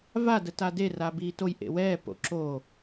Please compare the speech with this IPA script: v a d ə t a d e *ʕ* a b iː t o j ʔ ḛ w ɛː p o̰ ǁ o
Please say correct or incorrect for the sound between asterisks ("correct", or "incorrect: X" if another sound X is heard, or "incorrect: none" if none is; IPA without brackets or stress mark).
incorrect: r